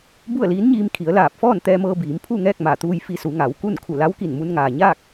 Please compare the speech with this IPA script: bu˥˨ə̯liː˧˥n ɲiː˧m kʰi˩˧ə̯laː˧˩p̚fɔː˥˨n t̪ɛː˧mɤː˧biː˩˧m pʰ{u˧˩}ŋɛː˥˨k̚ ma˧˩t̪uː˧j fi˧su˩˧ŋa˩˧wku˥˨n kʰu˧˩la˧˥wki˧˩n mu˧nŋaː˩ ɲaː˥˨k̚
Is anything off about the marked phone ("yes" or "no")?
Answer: yes